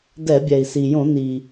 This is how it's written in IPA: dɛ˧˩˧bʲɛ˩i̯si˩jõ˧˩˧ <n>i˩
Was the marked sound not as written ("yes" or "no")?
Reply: no